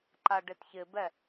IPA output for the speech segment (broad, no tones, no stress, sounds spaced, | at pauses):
ǃ a ɖ ɪ t ç ɪ b ɛ